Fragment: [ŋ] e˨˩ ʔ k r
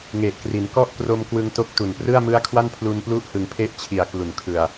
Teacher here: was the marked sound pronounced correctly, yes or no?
yes